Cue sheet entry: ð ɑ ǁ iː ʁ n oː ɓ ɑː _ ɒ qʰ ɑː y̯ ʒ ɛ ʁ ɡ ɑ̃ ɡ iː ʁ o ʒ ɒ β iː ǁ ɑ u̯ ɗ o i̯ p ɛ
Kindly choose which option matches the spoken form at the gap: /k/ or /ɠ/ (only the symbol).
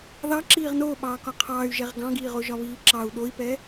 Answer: k